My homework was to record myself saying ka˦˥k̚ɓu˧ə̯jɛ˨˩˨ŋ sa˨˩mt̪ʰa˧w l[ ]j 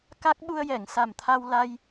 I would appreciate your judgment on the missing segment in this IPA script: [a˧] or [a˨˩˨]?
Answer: a˧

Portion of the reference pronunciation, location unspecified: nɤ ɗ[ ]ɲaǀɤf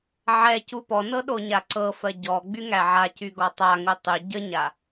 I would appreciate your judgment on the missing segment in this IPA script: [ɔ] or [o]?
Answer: o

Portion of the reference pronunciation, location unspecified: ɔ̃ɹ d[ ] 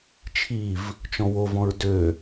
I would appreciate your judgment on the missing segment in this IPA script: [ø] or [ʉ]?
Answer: ø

